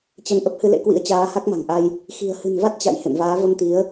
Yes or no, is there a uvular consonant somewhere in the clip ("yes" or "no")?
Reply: no